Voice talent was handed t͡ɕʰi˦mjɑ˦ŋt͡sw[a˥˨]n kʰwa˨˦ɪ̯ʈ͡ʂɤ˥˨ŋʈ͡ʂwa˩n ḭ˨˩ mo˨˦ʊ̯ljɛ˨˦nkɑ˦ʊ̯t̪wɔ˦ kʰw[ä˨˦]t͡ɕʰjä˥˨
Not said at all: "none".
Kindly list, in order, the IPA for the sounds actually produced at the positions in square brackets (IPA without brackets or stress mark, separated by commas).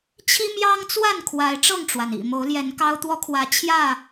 a˥˨, ä˨˦